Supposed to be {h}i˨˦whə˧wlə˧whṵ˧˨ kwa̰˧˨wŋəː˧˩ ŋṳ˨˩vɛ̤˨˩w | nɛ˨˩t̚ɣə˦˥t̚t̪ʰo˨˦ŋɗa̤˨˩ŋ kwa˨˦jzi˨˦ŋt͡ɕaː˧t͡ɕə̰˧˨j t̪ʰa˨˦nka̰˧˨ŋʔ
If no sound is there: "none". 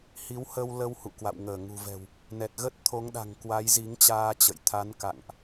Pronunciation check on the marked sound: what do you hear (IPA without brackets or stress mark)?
h